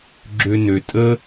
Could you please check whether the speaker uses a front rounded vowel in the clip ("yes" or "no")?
yes